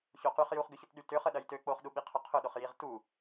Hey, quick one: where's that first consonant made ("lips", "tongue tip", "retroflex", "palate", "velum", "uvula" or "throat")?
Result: palate